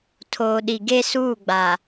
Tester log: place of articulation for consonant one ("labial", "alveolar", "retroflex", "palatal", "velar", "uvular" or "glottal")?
alveolar